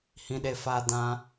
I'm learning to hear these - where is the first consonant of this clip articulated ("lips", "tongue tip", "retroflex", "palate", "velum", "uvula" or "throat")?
throat